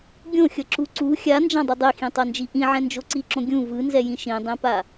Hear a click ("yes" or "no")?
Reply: yes